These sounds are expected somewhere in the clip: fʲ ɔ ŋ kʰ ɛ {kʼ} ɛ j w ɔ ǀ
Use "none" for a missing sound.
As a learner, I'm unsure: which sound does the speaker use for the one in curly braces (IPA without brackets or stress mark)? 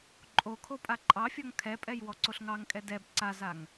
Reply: pʼ